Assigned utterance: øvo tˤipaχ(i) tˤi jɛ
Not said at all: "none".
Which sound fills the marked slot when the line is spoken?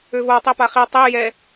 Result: i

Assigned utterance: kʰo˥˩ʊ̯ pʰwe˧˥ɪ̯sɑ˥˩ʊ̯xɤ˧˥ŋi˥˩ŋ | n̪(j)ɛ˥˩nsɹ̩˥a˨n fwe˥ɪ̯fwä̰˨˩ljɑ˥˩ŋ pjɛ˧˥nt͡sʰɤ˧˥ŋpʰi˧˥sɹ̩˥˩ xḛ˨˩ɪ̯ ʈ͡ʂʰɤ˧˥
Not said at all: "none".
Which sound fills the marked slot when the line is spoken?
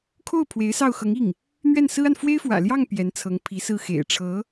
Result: ɥ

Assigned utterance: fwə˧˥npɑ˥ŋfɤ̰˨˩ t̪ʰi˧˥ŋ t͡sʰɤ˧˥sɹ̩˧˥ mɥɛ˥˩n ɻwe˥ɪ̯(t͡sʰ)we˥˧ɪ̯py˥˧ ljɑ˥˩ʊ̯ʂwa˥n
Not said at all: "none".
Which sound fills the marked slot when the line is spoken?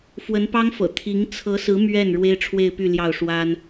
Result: ʈ͡ʂʰ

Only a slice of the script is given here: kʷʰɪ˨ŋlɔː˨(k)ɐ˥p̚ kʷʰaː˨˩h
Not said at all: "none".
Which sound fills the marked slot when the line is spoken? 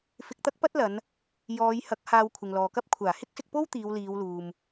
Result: k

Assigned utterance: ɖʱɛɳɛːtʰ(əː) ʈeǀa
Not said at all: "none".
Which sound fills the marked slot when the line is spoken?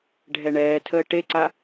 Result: əː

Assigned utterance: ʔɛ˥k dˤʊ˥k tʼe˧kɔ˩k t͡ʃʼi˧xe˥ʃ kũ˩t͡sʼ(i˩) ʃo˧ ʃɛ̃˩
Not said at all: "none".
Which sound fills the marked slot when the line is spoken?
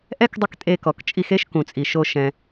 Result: i˩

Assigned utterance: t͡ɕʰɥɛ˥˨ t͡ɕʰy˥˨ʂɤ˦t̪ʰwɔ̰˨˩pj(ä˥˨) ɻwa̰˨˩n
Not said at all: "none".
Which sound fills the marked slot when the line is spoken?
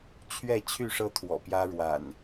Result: ä˦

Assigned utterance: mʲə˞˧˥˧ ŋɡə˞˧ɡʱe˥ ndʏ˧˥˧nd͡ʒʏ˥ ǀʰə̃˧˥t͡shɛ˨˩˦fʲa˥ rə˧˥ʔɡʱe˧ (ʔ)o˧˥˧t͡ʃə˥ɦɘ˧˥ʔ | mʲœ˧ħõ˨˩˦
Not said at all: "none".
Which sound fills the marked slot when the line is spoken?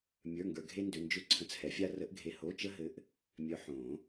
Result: h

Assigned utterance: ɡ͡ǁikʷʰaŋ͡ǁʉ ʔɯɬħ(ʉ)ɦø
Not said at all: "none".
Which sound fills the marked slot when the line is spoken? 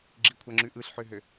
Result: ø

